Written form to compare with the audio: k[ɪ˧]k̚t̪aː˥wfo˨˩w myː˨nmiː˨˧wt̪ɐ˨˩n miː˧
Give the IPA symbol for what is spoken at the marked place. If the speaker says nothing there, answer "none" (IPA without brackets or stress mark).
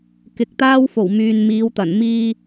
ɪ˨˥